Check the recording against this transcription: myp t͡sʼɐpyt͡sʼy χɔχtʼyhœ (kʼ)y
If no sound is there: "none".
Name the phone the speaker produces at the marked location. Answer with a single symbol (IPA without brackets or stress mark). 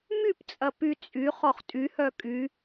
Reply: kʼ